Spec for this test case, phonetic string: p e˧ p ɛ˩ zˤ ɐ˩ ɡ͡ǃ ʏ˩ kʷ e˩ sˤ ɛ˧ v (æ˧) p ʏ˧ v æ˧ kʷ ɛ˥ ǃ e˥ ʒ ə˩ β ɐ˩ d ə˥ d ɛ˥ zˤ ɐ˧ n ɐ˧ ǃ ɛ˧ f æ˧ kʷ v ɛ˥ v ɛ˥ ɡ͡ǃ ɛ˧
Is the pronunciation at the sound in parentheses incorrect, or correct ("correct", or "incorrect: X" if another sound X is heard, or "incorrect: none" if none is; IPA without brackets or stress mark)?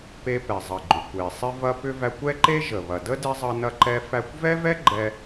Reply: incorrect: ɐ˧